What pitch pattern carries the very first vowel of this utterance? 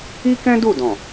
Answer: high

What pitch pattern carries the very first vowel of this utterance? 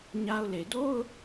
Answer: high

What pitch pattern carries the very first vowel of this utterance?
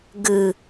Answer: low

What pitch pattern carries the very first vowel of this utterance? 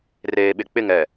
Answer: low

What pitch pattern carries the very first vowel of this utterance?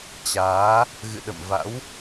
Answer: rising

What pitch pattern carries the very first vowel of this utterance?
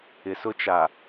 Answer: low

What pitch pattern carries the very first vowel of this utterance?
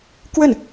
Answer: falling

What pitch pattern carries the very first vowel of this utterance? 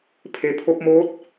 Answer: low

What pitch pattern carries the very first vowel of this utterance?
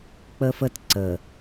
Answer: high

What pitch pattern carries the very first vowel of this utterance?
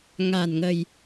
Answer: low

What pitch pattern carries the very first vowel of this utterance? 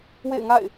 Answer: falling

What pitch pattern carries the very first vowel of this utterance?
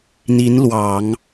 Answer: rising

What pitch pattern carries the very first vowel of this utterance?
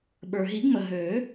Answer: low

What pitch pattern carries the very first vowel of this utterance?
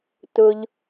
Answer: low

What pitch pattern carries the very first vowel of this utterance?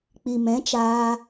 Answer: low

